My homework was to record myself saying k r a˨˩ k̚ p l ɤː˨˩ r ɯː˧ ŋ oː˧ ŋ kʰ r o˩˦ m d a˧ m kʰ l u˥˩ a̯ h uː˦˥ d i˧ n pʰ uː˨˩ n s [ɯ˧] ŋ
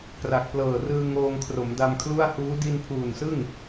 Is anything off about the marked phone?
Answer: yes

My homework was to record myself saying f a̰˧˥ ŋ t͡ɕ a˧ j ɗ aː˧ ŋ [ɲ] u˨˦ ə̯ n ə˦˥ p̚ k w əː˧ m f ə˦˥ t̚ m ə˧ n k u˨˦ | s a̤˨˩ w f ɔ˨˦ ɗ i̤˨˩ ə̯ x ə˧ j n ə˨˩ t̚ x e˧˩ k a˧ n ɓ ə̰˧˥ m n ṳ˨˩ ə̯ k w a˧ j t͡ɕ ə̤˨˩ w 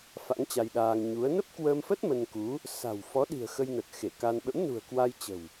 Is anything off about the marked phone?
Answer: no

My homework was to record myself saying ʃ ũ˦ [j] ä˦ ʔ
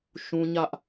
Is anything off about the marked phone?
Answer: yes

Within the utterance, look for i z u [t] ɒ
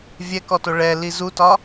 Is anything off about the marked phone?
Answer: no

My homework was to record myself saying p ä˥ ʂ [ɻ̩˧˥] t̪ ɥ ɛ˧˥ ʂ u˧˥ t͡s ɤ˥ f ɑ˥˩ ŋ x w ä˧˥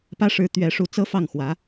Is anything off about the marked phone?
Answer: no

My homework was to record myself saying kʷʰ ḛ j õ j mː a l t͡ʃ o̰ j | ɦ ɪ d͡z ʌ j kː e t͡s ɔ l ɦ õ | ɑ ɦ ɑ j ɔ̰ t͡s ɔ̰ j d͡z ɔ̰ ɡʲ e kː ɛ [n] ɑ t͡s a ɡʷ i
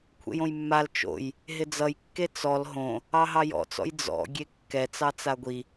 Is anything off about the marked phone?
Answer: yes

